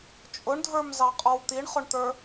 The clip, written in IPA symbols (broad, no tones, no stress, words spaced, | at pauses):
t͡ʃʼʊɳdʱə˞mzɑqʼɔw t̪iɳχʊɳt̪ə˞